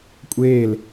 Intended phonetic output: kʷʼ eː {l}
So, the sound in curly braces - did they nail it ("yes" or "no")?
yes